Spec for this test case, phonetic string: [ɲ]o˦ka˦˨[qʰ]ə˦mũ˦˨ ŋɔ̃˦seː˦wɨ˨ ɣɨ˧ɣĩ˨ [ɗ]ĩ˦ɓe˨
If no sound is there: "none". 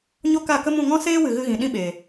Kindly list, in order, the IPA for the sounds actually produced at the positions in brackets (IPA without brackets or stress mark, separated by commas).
ɲ, k, ɗ